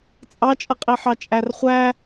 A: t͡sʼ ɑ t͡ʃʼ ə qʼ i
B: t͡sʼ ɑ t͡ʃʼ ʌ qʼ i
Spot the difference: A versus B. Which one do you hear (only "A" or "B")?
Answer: B